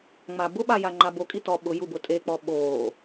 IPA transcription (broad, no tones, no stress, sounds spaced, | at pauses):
ŋ͡m aː b ʊ ɓ a j a ŋ͡ǃ a b o kʼ i t ɔ ɓ ʊ j u b ʊ tʼ e k͡p ɔ ɓ oː